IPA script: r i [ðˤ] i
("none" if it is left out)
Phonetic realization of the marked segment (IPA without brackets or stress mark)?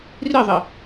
ðˤ